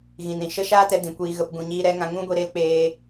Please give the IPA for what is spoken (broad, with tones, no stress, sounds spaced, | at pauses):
ɣ ĩ˨ n ɾ ĩ˨ ʃ ə˦ ʃ aː˦ t ɛ˧ d ĩ˨ kʷ iː˧ ɣ ə˧ p ɡ ũ˨ ɲ iː˧ ɾ ɛ˨˦ ŋ ã˧ ŋ ũ˦ ɡʷ i˧ ɾ e˧ l k͡p eː˧